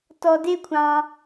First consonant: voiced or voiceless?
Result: voiceless